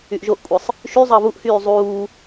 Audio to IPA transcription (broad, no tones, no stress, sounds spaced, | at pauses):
y ʔ ʒ o ʔ kʷʼ ɯ sˤ | ʃ y zˤ ɑ β u ʔ h yː zˤ uː